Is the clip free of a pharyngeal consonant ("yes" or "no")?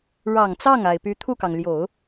yes